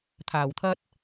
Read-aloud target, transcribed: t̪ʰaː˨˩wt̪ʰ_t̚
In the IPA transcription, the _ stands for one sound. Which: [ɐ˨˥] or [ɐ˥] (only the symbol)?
ɐ˥